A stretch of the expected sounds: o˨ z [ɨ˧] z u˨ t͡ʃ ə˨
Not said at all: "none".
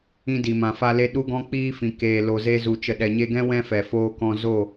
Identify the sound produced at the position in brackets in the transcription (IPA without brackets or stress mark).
e˧